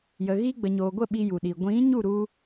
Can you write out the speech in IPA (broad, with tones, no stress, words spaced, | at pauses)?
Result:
jə˨ ɣiː˧ɡ͡bə˨ɲoː˨ɡʷə˦˨ ɓi˧ju˨ɗiː˨ ɡʷĩ˨˦ɲu˦˨ ɾu˦